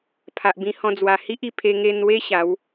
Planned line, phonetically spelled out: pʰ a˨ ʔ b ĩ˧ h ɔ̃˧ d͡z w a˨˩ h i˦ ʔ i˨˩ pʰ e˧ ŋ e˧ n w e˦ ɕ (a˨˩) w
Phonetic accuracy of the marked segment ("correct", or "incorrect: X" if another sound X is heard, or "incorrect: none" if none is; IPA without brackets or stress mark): incorrect: a˨˦